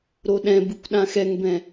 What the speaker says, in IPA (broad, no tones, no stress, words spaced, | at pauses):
ɾoɗɛ̃bɯkʷ ɗãxɛŋbɛ̃